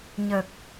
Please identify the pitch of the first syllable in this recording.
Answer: low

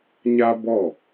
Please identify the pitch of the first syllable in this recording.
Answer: high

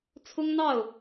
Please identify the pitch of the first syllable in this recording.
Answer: high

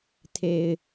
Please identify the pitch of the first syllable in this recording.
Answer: low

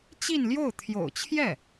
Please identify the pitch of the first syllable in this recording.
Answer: falling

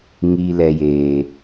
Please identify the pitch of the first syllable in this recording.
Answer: low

